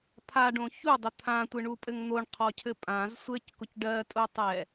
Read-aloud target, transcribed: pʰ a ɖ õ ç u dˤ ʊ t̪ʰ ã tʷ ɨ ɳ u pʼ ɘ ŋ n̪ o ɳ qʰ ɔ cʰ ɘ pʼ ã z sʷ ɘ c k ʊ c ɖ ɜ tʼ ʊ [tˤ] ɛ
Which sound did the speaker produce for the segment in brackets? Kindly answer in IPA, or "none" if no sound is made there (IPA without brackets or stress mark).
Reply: tˤ